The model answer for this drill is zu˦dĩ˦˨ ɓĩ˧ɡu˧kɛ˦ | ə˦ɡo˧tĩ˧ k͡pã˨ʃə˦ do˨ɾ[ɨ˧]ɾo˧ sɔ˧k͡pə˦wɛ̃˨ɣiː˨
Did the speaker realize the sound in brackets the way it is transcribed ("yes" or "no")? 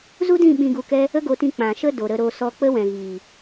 no